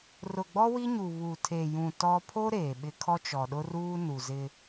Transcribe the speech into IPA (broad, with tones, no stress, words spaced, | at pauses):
rʊ˨ɡ͡bɔ˦ wi˦ɲu˨βuː˨ tʰe˨jũ˨ tɔ˦ pʰo˦ ɾeː˨ɓɪ˦ kʰɔ˦t͡ʃɔ˨ɗʊ˦ruː˦ nu˨zɪ˦